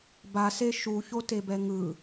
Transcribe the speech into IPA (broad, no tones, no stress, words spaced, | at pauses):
base ʃuçotebɛ ŋɯ